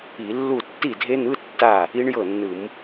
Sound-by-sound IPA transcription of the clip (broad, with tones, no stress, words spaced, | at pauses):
i˧˩˧ lːu˥˩ tːi˥˩dʱe˦˥n̪ɯ˧˥˧ tːa˥˩ | i˦˥ɳjɤ˥˩nːɯ˧˩˧m